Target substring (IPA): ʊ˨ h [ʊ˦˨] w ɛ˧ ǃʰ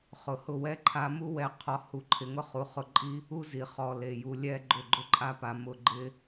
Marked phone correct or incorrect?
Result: correct